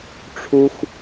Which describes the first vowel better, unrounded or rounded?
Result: rounded